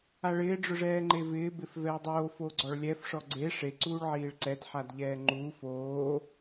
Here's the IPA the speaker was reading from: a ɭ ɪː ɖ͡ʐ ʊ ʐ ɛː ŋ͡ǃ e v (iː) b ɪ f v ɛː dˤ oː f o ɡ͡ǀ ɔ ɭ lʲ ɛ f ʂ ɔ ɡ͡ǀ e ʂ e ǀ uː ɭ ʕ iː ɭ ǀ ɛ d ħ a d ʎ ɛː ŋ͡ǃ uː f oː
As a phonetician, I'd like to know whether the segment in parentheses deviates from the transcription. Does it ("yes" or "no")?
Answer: yes